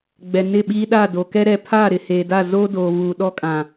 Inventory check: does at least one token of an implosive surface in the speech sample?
yes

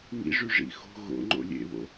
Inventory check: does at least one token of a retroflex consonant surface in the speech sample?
yes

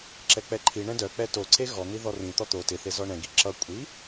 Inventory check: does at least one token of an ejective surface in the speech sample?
yes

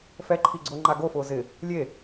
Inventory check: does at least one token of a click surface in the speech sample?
yes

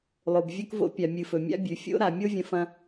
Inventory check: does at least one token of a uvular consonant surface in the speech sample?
no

